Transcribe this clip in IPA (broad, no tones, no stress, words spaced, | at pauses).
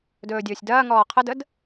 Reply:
dɵːdʲɵːsʲdɐːŋɔː qʰədəd